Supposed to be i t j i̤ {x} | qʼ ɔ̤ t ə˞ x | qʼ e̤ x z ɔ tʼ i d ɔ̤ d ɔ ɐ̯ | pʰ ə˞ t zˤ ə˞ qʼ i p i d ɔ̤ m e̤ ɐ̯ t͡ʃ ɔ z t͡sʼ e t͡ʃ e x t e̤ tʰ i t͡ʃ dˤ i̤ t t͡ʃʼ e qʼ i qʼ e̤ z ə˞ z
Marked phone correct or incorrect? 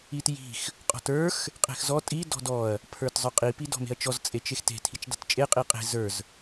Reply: correct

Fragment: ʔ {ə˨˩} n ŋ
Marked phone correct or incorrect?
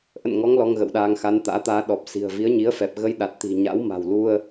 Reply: incorrect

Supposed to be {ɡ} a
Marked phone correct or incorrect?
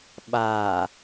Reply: incorrect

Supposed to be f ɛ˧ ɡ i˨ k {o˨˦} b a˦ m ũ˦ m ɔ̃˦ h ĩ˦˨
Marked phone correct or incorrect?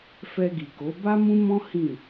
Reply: correct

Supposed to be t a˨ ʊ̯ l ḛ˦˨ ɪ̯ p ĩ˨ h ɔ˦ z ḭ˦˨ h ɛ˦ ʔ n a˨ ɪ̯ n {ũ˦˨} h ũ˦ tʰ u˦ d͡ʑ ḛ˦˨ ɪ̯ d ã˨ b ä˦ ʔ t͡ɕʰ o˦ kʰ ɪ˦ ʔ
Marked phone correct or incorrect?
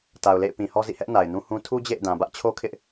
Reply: incorrect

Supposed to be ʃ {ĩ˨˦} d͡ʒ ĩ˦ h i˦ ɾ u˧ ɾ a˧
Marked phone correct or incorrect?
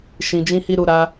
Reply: incorrect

